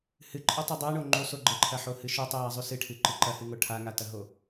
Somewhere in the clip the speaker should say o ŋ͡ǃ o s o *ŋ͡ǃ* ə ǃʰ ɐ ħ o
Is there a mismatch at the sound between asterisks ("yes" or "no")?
yes